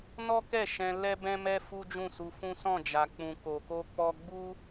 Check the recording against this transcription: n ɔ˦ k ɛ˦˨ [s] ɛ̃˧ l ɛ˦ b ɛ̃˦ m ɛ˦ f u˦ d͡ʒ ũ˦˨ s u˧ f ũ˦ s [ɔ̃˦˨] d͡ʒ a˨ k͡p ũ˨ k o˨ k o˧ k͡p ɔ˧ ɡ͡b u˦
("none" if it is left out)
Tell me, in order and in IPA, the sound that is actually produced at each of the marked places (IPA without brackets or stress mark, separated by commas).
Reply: ʃ, ɔ̃˦˨